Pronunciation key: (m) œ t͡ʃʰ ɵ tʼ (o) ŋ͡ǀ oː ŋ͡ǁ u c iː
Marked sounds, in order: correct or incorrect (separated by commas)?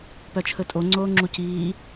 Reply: incorrect, correct